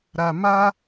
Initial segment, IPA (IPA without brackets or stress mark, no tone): ɾ